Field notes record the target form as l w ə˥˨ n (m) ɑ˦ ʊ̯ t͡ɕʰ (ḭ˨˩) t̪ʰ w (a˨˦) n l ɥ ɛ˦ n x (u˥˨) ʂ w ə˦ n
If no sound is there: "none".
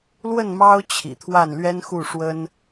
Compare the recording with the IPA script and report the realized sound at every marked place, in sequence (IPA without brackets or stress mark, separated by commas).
m, ḭ˨˩, a˥˨, u˥˨